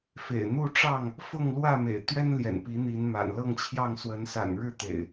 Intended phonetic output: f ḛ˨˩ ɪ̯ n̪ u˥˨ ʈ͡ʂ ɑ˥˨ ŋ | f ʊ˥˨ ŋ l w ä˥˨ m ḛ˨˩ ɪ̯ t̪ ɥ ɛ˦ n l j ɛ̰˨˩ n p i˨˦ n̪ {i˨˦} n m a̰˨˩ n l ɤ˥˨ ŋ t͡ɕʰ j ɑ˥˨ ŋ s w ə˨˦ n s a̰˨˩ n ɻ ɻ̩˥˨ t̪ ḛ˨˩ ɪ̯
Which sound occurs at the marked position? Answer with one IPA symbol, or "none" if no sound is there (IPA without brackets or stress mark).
i˨˦